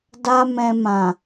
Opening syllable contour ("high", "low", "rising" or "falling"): high